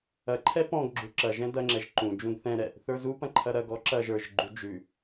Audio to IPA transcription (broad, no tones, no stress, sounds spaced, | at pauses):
ɐ ǃʰ ɛ p ɔ̃ ɡ ɡ͡ǁ u ǁ ɐ ʒ ɛ̃ d ɐ ŋ͡ǁ ɛ ʒ ǃ ũ d͡ʒ ũ ɡ θ ɛ̃ ɾ ɛ | θ ə˞ z u p ɐ̃ ǃʰ ɐ ɾ ɐ ɡ ɔ ǁ ɐ ʒ ə˞ ʒ ɡ͡ǃ u d͡ʒ ʉ